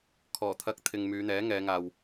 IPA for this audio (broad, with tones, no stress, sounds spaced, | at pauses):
kʰ ɔː˨˩ t̪ʰ ɐ˧ k̚ t̪ʰ ɪ˨ ŋ m yː˨˧ n̪ ɛː˨˥ ŋ ɛː˨˧ ŋ aː˨ w